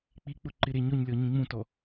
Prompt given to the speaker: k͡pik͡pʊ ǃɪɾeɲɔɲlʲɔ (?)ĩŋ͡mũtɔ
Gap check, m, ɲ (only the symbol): ɲ